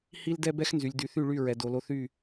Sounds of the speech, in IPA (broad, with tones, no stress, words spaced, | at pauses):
hi˦ldɛ˦ bɛ˦xnzy˨lʲ dy˨θy˦˨ɭy˦˨ ɹɛ˨do˨lo˦ θy˦˨